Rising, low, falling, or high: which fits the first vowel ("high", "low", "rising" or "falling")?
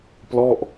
falling